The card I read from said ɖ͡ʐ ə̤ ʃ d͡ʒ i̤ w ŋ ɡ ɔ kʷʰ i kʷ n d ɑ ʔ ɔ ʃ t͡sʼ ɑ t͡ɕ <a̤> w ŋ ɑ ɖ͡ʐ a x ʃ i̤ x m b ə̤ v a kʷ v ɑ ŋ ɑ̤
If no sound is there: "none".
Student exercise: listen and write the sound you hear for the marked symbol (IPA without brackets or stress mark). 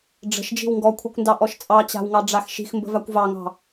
a̤